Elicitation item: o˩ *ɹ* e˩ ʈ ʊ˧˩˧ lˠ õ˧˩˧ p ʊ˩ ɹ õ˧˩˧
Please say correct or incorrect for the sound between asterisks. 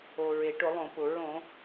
correct